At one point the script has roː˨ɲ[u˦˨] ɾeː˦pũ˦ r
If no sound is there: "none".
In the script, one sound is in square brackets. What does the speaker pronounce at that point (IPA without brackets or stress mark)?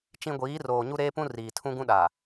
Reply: u˦